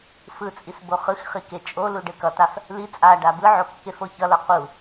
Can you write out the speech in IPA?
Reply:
fɯt͡sʼis boχɯxχi ket͡ʃʼolu ɖekʌtaf | li t͡sʼa ɖabɯʕo kːefoçʌlʌ qu

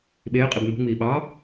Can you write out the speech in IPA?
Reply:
ɓeːqʼib nṳŋ͡miː ɓɑ

